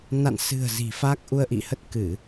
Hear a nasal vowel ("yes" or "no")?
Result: no